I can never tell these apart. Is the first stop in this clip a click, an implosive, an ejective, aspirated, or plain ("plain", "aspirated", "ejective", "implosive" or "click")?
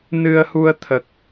aspirated